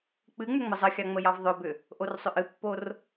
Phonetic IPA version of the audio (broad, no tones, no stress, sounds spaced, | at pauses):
k͡p ɨ ŋ͡m ʏ ŋ͡m ə zˤ ə xʲ ɑ ŋ͡m ə j ɑ v ðˤ ɵ b ʏ | ʔ o r sˤ ʏ ʔ ɨ pː o r